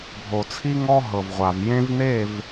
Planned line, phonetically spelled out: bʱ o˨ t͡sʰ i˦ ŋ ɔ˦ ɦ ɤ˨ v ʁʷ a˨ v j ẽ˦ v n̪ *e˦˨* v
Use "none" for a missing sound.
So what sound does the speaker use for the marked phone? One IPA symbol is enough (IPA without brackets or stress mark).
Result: e˦˨